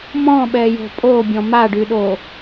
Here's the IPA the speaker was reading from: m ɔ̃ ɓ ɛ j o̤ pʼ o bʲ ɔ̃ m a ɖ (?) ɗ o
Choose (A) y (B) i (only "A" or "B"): A